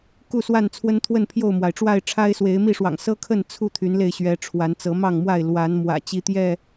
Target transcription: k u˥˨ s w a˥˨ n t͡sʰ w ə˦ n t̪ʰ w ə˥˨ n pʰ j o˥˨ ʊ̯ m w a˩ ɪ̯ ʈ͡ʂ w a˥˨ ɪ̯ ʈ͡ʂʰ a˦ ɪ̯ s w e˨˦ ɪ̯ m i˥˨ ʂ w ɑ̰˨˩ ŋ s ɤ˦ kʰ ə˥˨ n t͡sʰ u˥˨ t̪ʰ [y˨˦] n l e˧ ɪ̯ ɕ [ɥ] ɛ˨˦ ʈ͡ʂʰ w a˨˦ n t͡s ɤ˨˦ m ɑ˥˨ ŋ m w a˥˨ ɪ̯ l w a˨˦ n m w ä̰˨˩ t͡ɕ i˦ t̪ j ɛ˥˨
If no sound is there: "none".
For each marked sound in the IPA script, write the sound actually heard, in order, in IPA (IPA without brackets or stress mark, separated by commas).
y˨˦, ɥ